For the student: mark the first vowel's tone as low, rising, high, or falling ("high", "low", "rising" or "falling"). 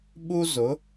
high